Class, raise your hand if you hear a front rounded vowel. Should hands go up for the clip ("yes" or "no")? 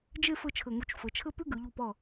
no